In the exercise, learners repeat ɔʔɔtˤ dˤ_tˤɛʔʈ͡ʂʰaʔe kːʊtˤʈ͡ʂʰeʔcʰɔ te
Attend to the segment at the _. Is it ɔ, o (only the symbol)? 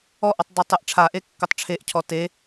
o